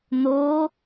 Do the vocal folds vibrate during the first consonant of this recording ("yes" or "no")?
yes